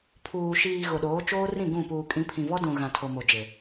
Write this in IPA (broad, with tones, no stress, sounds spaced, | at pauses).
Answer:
pʰ uː˨ ʃ iː˨ ɣ ʊ˨ ɗ oː˨˦ t͡ʃ oː˦ r ĩ˦˨ ɡ ũ˦˨ p uː˨ kʼ ĩ˨˦ pʰ ĩ˨ v ɔ˦ d ũ˨ ɣ ã˨ tʰ o˨ m o˨ d͡ʒ e˨